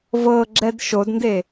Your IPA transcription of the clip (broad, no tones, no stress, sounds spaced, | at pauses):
v ɤ ɡ͡ǁ ɛ d ʃ o d n d e